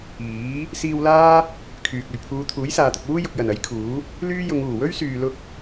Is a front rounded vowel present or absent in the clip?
present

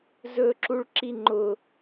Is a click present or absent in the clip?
present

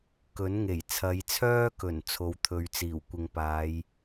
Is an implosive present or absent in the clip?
absent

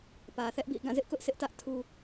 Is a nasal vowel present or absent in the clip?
present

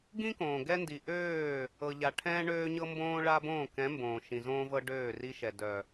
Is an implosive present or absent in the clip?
absent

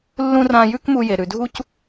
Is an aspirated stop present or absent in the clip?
absent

